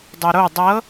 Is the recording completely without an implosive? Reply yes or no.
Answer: yes